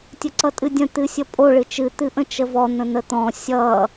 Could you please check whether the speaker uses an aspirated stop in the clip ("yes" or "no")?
no